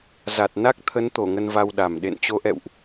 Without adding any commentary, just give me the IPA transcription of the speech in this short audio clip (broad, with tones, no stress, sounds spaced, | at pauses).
z a˨˩ t̚ n a˦˥ k̚ t̪ʰ ə˨˦ n t̪ o˧˩ ŋ ə˧ n v a˧ w ɗ a˨˩ m ɗ ḛ˧˨ n t͡ɕ o˨˦ ʔ ɛ̰˧˨ w ʔ